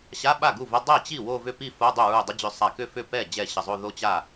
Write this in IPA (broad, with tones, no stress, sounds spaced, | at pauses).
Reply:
ɕ a˧˥˧ ɓ a˥˩ ɡ u˥˩ v ə˧˥˧ dˤ ɛ˥˩ t͡ɕ i˥˩ w o˥˧ v ʏ˥˧ p i˥˧ f o˧˥˧ dˤ ʏ˥˩ ɹ u˧˩ dˤ ə˧˥˧ d͡ʑ ʏ˧˩ sˤ a˧˩ k ʏ˥˩ f ʏ˥˩ p ɛ˥˩ d͡ʑ ɛ˥˩ ɕ ə˧˩ zˤ o˥˧ ð o˥˧ t͡ɕ a˥˩